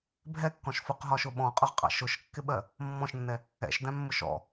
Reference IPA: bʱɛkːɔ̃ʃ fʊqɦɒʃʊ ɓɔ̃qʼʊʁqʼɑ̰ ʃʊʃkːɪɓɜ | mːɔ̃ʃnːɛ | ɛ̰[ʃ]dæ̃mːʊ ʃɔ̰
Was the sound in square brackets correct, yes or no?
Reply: yes